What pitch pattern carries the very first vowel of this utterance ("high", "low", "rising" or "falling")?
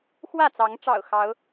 falling